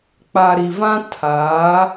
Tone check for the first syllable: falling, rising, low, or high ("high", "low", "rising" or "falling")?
low